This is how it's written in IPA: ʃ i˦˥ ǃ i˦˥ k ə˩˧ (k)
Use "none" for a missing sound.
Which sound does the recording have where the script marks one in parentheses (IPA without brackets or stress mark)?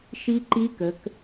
k